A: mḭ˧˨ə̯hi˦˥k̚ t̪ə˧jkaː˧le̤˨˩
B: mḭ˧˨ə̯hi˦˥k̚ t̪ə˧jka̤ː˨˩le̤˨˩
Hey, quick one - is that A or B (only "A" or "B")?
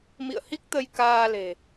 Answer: A